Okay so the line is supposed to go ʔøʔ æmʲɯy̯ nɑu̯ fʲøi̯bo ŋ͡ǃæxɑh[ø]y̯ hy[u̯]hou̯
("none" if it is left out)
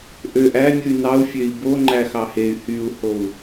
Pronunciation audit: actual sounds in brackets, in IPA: e, u̯

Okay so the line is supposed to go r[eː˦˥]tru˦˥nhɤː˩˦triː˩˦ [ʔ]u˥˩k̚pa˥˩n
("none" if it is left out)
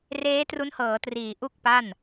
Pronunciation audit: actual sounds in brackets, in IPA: eː˦˥, ʔ

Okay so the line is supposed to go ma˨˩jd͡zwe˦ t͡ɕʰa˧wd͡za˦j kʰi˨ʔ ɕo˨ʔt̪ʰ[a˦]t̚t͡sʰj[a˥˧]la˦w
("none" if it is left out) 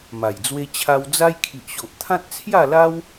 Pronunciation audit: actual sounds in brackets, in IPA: ã˦, a˥˧

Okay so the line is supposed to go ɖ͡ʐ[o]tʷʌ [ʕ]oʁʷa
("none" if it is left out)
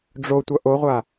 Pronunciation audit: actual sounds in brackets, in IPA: o, ʔ

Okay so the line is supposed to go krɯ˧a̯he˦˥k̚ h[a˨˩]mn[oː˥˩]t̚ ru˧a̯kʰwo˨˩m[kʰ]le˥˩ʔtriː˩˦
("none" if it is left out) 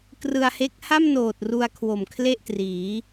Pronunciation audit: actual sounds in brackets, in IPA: a˥˩, oː˨˩, kʰ

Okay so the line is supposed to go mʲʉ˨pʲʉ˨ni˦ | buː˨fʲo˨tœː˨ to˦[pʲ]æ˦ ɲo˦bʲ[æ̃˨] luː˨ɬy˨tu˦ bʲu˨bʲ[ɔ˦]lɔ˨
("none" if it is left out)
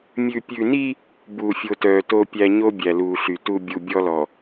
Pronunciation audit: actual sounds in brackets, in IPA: pʲ, æ˨, ɔ˦

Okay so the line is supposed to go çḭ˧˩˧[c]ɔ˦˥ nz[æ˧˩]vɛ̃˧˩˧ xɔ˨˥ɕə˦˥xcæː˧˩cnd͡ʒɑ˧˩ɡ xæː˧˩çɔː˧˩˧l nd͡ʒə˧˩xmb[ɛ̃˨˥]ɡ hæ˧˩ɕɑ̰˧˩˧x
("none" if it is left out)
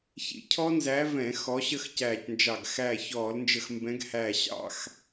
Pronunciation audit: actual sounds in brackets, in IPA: cʰ, æ˨˥, ɛ̃˨˥

